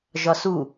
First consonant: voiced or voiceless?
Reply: voiced